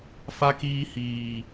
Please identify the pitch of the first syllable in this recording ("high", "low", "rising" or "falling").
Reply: high